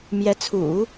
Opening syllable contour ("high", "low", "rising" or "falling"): rising